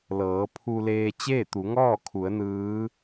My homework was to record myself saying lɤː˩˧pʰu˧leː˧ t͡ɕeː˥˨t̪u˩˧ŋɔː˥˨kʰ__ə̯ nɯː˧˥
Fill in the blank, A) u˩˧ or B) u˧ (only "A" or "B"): A